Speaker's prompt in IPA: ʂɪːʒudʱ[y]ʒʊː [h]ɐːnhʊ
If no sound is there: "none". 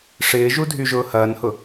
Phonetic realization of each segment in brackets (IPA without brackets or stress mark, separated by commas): y, h